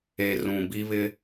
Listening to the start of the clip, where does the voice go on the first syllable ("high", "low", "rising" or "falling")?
low